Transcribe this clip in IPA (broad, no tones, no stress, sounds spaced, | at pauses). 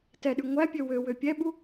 t ɛ ɗ ʉ ŋʷ æ pʲ ø w ø w ø pʲ ɛ ɓ u